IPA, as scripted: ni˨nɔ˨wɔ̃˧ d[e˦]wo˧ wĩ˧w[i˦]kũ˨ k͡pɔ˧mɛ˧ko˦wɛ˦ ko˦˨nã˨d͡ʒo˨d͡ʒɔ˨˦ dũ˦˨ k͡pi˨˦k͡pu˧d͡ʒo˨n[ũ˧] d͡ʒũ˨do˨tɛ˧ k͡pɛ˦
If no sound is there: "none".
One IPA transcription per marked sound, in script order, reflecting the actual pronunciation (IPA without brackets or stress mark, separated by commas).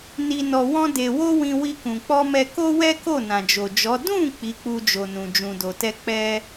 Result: e˨, i˧, ũ˨